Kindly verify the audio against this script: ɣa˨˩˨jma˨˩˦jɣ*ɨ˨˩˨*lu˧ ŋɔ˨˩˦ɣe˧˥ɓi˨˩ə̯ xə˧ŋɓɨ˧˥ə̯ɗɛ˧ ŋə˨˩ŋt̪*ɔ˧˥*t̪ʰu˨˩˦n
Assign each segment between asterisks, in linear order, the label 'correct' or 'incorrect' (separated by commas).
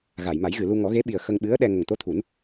correct, incorrect